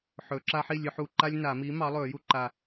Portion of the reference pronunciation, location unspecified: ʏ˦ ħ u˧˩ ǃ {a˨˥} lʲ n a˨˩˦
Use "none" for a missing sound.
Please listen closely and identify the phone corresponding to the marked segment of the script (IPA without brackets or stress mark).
a˦